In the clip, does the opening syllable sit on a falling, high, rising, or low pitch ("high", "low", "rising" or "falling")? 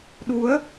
rising